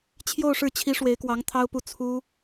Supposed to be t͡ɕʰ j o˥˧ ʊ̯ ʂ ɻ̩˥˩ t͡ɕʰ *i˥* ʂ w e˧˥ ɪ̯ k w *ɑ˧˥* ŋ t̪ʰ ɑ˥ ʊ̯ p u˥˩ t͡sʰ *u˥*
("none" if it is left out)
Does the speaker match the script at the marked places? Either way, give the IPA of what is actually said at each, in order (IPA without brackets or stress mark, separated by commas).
i˧˥, ɑ˧˥, u˥